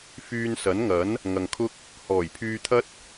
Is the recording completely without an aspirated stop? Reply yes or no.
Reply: no